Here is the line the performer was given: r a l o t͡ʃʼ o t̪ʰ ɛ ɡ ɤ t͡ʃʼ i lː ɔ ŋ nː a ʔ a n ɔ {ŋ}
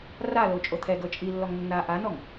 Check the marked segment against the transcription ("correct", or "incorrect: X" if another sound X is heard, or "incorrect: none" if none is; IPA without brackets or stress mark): correct